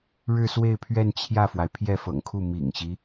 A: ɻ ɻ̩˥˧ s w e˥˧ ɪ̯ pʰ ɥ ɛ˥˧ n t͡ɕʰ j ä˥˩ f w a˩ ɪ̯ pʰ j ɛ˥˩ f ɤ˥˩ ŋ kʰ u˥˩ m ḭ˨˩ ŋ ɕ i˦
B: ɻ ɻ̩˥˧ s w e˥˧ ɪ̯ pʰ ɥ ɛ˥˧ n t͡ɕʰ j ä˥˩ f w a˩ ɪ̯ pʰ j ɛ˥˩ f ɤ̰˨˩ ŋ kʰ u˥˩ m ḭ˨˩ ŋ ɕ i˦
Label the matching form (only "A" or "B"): B